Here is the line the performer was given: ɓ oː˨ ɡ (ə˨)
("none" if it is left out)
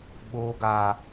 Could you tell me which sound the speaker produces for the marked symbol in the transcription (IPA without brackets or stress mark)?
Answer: a˨